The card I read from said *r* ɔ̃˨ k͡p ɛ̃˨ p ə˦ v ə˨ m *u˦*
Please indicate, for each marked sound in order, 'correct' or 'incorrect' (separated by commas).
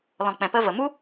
incorrect, correct